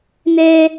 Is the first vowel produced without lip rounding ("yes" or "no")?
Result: yes